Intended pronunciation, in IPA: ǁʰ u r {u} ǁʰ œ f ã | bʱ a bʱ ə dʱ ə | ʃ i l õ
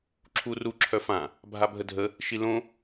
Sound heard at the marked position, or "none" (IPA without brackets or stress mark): u